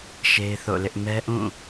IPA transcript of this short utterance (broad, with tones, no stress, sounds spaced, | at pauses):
ʃ e˦ ɪ̯ θ o̰˦˨ l ɪ˦ ʔ m ɛ˦ ʔ ũ˦˨